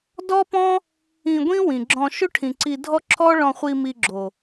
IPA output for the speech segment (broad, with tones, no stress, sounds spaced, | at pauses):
d ɔ˦ p ɔ̃˦ | ĩ˧ ɡʷ ĩ˦ w ĩ˨ ɡ͡ǁ ɔ̃˧ ʃ ɵ˦ ʈʰ ĩ˨ ǀ i˧ dʱ ɔ˦ ǁʰ ɔ˦ ɭ ɔ̃˧ χʷ i˧ m i˧ ɡ͡ǁ o˨